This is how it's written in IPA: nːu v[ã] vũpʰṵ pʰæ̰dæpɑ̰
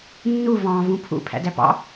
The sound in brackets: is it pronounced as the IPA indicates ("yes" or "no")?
no